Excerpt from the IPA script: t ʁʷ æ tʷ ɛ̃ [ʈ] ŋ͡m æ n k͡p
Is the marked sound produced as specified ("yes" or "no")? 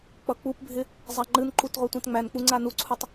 no